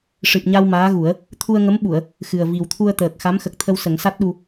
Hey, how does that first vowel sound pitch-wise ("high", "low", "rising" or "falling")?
low